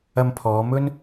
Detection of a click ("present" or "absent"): absent